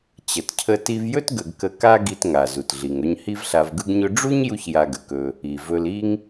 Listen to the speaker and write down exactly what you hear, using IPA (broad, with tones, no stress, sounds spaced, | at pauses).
t͡ɕ ə˩ t cʰ ə˧ t i˧ v j ɵ˥ t ɡ ə˧ ɡ k ə˧ k a˥ ɡ i˧ t ŋ a˩ z u˩ t ɮ i˩ ŋ ɵ˧ ɲ h i˥ v ɬ a˧ v ɡ ɯ˥ ɡ ɲ ɵ˥ ɖ͡ʐ u˥ ɲ j u˥ ç j a˧ ɡ ə˩ k ɵ˧ | i˩ v ɵ˧ l i˥ ŋ